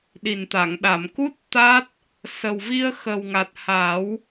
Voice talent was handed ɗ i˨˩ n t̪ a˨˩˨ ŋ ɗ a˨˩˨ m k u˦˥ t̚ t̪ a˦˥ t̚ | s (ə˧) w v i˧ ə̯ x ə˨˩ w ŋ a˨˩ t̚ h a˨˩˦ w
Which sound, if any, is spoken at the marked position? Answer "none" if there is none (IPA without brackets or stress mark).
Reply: ə˨˩